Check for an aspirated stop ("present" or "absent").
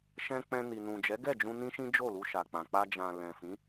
absent